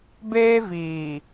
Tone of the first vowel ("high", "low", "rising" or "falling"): high